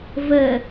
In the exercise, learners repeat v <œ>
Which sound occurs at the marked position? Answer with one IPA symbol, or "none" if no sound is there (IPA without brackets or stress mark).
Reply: ə